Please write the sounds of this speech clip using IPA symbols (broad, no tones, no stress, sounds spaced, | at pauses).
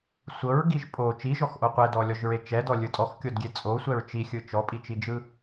sʷ ɤ ɹ ɡ i ʒ pʼ o t͡ʃ i ʒ ɔ x ʔ o qʷ ɛ d ɔ lʲ ɔ ʒ ɹ e t͡ʃ ɛ d ɔ lʲ ɯ tʼ ɔ x kʲ o d ɡʲ e t͡sʼ o sʷ ɛ ɹ t͡ʃ i xʲ ɯ t͡ʃ ɔ pʼ i t͡ʃ i d͡ʒ ɯ